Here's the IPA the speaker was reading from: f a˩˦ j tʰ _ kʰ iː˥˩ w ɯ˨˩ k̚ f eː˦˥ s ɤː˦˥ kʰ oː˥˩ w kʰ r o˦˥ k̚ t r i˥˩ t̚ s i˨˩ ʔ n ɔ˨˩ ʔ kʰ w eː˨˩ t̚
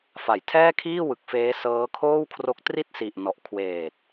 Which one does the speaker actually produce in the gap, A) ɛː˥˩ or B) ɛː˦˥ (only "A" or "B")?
A